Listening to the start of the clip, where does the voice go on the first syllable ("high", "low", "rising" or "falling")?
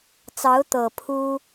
rising